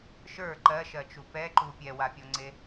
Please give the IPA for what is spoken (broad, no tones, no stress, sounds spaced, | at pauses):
ʃ ə˞ ǃ ɜ ʃ ɜ t͡ʃ u p ɛ ǃ u pʲ ɛ w a pʲ ɔ ŋ͡ǀ e